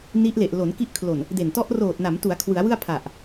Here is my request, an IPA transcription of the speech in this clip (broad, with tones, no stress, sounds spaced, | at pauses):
n i˦˥ ʔ l e˨˩ ʔ l o˩˦ n k i˦˥ ʔ kʰ l o˨˩ n | d e˨˩ n t ɔ˦˥ ʔ r oː˨˩ t̚ n a˩˦ m t u˩˦ a̯ kʰ w ɯ˩˦ a̯ w ɯ˥˩ a̯ pʰ a˨˩ ʔ